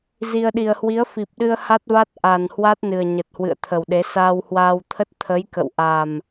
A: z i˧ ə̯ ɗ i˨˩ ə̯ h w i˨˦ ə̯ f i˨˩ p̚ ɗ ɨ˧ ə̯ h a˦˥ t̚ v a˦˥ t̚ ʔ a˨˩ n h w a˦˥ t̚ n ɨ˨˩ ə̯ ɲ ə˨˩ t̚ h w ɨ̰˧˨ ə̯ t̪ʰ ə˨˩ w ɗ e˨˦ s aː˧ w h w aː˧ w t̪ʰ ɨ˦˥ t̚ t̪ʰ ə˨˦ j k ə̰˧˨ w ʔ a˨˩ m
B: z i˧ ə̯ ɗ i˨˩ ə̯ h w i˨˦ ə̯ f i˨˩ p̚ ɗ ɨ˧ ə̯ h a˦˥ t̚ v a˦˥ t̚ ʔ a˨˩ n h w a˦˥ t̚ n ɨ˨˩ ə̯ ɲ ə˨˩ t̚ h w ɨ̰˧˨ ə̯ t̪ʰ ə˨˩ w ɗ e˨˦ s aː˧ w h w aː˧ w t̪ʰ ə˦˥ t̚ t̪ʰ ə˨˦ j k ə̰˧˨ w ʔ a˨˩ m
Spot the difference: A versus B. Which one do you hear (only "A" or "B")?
B